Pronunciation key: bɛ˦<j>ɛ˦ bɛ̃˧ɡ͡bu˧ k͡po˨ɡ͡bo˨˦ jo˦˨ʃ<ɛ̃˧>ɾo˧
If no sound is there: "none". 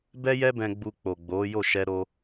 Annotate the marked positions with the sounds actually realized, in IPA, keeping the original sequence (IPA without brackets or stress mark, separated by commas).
j, ɛ˧